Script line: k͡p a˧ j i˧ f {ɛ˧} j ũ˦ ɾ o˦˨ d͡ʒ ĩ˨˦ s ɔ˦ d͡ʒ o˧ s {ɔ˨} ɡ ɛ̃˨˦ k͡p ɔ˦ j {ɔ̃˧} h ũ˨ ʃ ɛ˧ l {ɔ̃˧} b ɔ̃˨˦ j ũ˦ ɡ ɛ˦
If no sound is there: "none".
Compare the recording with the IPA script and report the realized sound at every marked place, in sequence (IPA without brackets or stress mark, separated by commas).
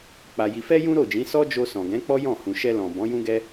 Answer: ɛ˦, ɔ̃˨, ɔ̃˦˨, ɔ̃˨